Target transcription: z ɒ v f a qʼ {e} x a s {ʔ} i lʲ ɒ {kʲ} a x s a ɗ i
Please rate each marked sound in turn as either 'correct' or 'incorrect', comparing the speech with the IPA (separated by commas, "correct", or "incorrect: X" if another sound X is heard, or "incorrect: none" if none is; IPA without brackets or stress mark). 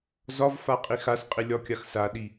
incorrect: i, incorrect: qʼ, correct